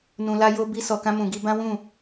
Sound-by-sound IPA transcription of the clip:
nũ˧la˦ jo˦ bi˦sɔ˧kã˦ mũ˧ɡi˦ bã˦wũ˦˨

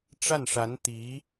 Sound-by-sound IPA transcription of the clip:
ʈ͡ʂa˥˩nʂa˧˥nt̪i˧˥

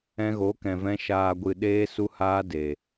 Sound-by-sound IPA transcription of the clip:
ɛ̃˧ɣo˨˦kɛ̃˨vɛ̃˧ ʃaː˨ɡʷɨ˨ ɗeː˧su˧haː˧ de˨

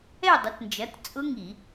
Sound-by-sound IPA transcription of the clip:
ɛ˥˨dˤə˩˥tnd͡ʒɐ˩˥t t͡sʼʊ˦˥ŋi˧˩˧

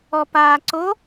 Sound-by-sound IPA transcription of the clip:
ɔpaːǀo

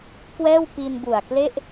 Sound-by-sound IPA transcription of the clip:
kwɛː˥˩wpi˧nbu˨˩a̯kle˥˩ʔ

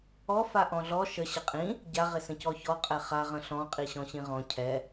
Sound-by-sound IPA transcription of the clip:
ɔ faʔɔ̃ɮɔ ʃə ɕəqʼĩ | ɟa ʁɪsə̃cɔçɔ qʼɛχa ʁə̃ɬɔ̃ qʼiɕɔ̃ɕĩʁɔ̃ cʰɛ

